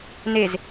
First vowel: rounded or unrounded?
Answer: unrounded